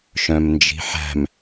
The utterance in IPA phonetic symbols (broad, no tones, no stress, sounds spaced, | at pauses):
ʃ œ̃ m n d͡ʒ i̤ ħ æ̤ m